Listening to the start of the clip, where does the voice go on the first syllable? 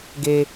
high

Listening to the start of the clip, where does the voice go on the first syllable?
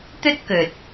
high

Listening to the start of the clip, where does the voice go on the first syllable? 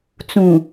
low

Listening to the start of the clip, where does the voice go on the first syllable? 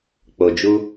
low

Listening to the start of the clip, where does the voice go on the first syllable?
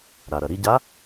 low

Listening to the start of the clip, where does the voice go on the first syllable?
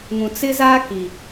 low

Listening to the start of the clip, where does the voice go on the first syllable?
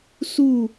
falling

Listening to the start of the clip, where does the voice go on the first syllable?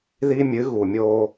high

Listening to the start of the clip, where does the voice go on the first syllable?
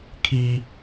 high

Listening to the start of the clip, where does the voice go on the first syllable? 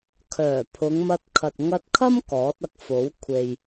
low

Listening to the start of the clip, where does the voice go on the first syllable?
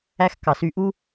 high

